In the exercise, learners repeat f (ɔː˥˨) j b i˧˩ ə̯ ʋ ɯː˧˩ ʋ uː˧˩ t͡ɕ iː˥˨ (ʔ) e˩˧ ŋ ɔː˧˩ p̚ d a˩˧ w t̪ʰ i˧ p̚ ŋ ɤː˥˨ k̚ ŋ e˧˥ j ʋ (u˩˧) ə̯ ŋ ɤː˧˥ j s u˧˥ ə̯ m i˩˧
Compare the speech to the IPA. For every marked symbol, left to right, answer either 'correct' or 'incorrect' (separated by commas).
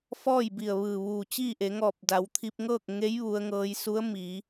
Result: correct, correct, incorrect